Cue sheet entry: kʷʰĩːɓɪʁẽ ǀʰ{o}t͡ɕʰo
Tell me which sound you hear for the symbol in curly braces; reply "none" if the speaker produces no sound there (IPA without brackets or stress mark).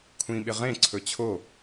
ɵ